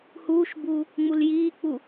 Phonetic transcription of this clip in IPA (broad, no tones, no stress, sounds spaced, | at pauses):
h uː ʃ b uː | ŋ͡m u l j iː k͡p u